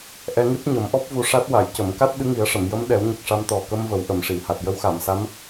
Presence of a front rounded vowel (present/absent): absent